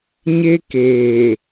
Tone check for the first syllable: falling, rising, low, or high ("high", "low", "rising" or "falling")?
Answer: high